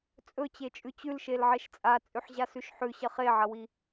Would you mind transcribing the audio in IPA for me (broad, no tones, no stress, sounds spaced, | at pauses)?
t͡sʼ ɵ t͡ɕ e t͡ʃʼ ʉ t͡ɕ ʉ l ʃ e l ʕ e ʃ t͡sʼ a t͡sʼ ʉ ħ ʑ a s ʉ ʃ ħ ʉ ɕ ɐ χ e ʕ ɐ w i